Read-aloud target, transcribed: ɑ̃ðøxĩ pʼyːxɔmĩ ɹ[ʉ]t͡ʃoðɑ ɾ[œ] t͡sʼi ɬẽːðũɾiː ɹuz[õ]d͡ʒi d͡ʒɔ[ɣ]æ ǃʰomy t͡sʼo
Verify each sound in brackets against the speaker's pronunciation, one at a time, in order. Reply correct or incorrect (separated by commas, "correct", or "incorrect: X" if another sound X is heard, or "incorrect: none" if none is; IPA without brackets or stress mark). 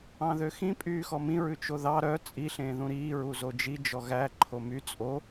correct, correct, incorrect: o, correct